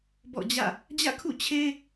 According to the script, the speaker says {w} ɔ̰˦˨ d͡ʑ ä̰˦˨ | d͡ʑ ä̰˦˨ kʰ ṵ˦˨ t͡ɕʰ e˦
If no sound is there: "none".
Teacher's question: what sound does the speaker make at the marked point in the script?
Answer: b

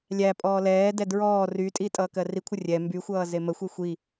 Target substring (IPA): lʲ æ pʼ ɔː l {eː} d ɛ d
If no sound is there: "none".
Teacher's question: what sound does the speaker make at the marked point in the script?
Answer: ɛː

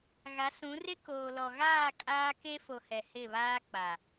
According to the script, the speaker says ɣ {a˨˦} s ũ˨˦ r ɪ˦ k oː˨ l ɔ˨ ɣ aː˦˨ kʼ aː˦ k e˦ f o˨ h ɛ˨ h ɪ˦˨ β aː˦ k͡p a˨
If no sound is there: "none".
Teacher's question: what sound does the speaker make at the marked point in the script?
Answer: a˨˦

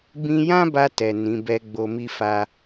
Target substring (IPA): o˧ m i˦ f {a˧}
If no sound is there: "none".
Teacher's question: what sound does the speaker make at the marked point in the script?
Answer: a˧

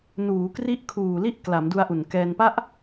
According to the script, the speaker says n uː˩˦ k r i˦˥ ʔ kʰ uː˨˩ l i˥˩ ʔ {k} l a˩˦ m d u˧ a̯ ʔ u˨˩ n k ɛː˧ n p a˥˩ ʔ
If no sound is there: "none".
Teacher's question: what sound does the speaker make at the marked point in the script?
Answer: k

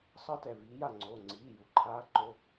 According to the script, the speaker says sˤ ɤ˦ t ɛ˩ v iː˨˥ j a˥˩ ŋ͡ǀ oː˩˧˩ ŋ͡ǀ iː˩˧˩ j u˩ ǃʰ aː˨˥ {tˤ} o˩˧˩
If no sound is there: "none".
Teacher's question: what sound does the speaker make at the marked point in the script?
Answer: ǃ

